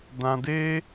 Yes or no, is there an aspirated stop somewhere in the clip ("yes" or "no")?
no